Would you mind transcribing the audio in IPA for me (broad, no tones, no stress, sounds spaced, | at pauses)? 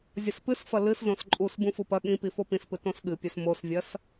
zʲ ɐ s p ɨ s f ɐ l ɨ s z õ s ǃʼ u s b ũ f u p ɐ ɠ ĩ p i f o p ĩ s p ɨ t õ s ɠ ɨ pʲ ɵ s m o s vʲ ɐ s